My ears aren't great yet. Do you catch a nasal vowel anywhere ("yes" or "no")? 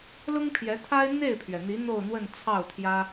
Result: no